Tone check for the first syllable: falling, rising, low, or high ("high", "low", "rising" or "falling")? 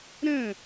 falling